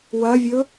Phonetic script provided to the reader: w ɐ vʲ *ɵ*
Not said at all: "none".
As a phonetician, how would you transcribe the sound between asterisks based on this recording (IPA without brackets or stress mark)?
ɵ